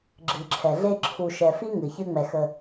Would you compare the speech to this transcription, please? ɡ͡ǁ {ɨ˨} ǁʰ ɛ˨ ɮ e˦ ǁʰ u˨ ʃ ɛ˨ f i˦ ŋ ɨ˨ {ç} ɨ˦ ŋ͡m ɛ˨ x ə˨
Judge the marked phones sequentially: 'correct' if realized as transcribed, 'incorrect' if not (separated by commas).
correct, correct